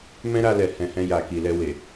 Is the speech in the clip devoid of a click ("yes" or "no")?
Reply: yes